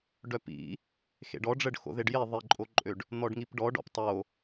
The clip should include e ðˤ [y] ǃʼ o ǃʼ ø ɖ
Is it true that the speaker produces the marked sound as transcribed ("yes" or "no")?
no